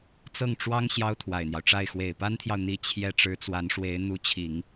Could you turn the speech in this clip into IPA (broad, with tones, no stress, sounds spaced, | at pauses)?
t͡s ɤ˥˩ ŋ ʈ͡ʂ w ɑ˥ ŋ ɕ j ɑ˥ ʊ̯ t̪ʰ w a˨˩ ɪ̯ n̪ j ɑ˦ ʊ̯ ʈ͡ʂ a˥˩ ɪ̯ x w e˨˩ ɪ̯ p a˥ n t̪ʰ j ɑ˨ ʊ̯ n̪ i˥ t͡ɕʰ j ɛ˥ ʈ͡ʂ ɻ̩˧˥ t͡s w a˧˥ n ʂ w e˧˥ ɪ̯ n̪ u˧˥ t͡ɕʰ i˨˩˦ ŋ